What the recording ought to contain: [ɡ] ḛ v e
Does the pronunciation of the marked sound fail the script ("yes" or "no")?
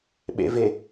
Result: yes